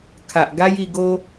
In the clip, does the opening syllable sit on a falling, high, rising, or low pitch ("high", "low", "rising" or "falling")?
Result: low